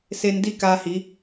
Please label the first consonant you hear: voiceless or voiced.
voiceless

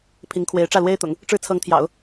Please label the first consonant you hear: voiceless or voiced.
voiceless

